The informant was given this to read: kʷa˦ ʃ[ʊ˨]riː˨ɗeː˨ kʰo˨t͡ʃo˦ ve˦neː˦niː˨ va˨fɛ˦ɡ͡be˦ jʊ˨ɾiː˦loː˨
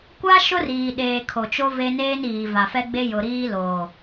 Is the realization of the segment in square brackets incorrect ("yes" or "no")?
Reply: yes